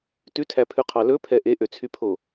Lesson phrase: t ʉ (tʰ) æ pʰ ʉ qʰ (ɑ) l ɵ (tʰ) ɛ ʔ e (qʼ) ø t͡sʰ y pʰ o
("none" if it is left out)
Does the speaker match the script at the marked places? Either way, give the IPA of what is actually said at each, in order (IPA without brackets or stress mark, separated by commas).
tʰ, ɑ, pʰ, ʔ